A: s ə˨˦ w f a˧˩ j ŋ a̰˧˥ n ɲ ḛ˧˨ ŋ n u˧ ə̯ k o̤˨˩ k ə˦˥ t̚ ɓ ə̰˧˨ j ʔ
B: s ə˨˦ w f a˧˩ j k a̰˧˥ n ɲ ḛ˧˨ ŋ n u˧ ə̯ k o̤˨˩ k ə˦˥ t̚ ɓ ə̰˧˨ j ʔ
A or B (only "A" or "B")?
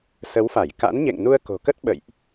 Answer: B